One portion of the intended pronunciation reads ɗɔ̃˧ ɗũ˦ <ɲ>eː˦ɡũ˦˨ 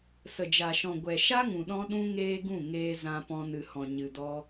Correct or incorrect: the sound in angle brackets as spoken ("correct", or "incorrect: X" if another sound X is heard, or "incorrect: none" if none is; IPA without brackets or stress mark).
incorrect: ŋ